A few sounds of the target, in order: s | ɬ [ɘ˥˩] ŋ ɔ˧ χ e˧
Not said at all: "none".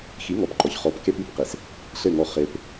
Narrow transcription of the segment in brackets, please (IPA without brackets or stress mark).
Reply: ɘ˥˩